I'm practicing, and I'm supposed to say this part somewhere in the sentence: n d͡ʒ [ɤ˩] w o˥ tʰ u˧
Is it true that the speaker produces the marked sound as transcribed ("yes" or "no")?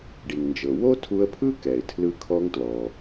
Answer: yes